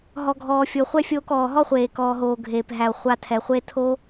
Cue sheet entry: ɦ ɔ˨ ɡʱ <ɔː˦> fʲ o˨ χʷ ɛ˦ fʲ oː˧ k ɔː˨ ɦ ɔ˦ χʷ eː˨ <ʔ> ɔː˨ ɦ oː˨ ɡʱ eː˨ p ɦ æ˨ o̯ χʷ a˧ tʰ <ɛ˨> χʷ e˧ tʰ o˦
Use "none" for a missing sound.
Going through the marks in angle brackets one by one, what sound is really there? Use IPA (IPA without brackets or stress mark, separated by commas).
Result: ɔː˨, k, ɛ˨